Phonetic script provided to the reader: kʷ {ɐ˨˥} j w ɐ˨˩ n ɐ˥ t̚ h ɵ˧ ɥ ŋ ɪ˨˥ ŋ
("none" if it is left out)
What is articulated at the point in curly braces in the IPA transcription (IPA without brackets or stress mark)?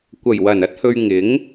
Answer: ɐ˨˩